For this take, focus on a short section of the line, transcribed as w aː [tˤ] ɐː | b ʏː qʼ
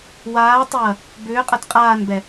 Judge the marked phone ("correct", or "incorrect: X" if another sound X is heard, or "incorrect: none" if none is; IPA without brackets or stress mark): correct